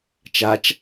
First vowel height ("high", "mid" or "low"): low